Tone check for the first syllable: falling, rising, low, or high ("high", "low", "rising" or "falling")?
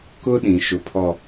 high